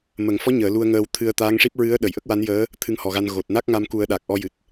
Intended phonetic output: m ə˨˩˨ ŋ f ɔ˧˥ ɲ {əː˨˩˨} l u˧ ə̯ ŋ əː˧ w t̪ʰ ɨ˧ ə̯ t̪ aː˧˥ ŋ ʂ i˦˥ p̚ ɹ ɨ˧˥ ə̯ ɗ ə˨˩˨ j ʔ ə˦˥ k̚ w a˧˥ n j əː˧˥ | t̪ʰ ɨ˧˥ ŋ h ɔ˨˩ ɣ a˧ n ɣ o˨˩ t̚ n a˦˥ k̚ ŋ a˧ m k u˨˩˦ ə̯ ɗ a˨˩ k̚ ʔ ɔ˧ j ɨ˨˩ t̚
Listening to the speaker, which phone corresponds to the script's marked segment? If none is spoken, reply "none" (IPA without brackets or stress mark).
əː˨˩˨